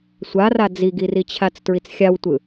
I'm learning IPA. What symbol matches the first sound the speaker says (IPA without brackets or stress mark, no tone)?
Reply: sʷ